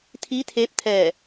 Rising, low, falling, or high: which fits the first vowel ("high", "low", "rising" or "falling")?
rising